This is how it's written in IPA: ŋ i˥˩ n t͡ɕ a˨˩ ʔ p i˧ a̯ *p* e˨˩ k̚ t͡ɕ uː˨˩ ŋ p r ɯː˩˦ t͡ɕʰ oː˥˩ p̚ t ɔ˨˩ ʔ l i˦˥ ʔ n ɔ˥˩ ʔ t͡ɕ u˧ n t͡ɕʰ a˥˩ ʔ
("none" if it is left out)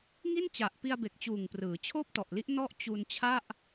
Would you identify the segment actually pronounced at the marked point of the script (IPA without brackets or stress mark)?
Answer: b